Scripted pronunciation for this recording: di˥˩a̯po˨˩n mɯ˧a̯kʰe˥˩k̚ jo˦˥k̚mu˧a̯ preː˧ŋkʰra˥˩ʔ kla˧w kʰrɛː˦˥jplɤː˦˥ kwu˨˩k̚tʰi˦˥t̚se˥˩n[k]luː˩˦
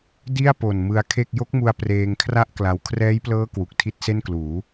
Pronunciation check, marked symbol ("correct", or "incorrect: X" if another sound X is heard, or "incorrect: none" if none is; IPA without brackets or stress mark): correct